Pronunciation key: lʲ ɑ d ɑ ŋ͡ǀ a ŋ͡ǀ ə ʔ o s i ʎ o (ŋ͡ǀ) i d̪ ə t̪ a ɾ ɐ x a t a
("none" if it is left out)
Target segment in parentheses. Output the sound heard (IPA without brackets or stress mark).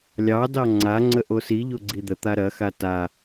ɡ͡ǀ